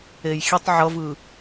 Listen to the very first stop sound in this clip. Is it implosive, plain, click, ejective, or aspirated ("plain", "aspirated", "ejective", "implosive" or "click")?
plain